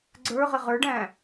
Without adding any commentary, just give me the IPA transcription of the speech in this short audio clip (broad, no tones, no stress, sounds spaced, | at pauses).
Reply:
ɡ͡ǀ ə˞ ʁ ɪ ʁ ə˞ ɖ æ̃ː